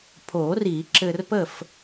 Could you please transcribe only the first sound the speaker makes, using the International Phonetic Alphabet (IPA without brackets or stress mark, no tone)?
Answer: pʰ